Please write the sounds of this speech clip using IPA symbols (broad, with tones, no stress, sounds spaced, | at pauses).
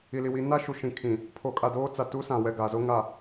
i˨ l i˨ w i˨˦ n a˦ ʃ u˨ ʃ ĩ˨ kʰ ĩ˨ | pʰ o˨ kʼ a˨ d oː˦ t͡s a˨ t u˦ s ã˨ w ɛ˨ ɡ a˨ z o˦ ŋ a˨